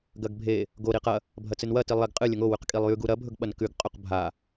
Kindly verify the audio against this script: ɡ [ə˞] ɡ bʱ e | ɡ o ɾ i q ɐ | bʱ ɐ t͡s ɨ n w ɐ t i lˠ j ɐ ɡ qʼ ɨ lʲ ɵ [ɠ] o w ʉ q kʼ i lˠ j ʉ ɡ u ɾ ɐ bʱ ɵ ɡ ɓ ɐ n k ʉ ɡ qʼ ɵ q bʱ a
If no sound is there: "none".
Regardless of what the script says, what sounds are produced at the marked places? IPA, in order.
ɐ, ŋ

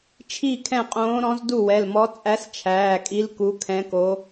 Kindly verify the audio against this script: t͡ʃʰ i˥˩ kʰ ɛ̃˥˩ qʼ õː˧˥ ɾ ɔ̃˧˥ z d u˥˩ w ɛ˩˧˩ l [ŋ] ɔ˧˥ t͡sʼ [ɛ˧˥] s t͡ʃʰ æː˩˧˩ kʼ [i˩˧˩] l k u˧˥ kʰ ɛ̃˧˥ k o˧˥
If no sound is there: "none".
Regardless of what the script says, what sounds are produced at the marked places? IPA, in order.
m, æ˧˥, i˧˥

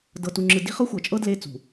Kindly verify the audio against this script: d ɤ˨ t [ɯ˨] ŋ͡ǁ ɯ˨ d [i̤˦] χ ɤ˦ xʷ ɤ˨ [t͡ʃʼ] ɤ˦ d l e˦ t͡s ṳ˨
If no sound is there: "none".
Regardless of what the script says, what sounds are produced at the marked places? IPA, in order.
u˨, i̤˦, t͡ʃʼ

